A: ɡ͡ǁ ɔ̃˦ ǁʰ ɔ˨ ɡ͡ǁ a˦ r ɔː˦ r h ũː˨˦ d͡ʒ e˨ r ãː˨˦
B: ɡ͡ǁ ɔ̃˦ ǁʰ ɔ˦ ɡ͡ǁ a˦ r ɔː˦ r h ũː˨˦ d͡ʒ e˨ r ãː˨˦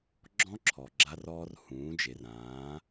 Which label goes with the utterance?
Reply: A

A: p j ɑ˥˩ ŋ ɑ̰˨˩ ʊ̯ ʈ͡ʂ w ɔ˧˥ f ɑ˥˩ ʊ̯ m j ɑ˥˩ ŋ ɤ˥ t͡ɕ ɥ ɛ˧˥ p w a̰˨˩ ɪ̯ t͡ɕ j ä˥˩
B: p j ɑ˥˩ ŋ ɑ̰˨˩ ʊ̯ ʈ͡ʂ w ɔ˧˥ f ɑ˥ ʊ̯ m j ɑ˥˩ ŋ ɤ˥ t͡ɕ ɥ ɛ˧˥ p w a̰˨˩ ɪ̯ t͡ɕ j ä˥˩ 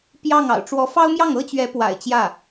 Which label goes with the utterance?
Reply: B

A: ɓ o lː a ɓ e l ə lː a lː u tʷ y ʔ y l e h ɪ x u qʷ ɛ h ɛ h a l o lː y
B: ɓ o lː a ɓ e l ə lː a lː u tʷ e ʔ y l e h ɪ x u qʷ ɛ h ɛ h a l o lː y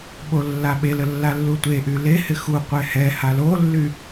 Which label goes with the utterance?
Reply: B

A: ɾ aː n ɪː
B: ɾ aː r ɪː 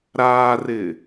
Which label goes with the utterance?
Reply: B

